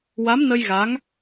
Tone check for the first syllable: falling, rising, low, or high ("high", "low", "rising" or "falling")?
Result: rising